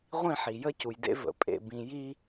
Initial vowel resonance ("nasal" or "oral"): nasal